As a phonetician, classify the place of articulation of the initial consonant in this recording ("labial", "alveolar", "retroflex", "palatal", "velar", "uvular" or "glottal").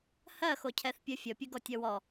glottal